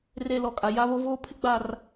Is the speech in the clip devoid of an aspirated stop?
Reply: no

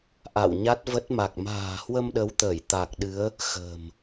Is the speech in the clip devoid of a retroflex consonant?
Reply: yes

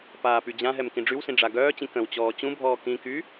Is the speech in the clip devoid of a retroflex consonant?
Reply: no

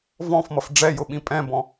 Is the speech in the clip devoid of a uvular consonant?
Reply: yes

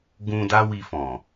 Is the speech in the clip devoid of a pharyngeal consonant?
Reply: yes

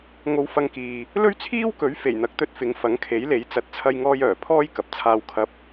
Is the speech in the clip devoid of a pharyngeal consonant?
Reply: yes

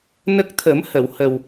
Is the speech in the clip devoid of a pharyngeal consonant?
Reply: yes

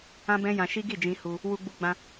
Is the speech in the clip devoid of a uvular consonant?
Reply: yes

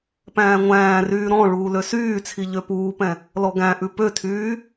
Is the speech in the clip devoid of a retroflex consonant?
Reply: no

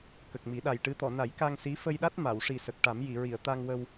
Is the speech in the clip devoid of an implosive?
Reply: no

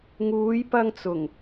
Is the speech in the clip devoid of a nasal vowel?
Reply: yes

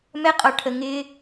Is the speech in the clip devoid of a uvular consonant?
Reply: no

